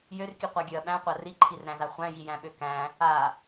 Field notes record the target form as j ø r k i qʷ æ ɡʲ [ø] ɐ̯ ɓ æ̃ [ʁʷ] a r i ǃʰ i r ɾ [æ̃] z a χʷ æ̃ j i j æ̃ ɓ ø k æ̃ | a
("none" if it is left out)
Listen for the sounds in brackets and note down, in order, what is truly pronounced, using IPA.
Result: ø, qʷ, æ̃

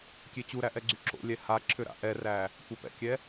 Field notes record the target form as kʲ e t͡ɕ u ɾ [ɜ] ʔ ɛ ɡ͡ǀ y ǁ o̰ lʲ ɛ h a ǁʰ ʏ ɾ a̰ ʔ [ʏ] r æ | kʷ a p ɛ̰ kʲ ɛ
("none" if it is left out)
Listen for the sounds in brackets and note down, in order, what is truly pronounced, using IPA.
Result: æ, ɛ

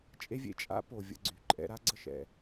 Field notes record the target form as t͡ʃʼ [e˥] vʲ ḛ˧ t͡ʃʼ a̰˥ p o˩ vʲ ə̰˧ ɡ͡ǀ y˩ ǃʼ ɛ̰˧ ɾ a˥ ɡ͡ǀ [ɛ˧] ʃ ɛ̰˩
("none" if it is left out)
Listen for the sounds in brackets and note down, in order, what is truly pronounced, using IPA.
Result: e˥, ə˧

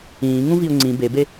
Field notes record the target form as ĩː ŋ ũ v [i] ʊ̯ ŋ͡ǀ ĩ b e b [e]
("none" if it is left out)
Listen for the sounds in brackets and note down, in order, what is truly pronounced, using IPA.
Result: i, e

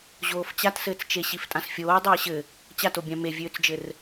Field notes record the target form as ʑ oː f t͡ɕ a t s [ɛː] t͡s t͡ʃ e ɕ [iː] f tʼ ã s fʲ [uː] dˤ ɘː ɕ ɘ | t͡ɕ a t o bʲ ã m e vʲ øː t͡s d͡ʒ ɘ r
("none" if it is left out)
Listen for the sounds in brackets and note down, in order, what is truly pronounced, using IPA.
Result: ɘː, i, oː

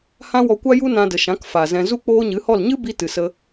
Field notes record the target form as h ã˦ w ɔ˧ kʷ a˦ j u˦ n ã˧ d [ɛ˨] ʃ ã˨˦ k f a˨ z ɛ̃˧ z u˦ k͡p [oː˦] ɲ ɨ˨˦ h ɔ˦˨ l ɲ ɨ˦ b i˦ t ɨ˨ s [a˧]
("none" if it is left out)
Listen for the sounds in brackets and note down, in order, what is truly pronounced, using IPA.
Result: ə˨, oː˦, ə˧

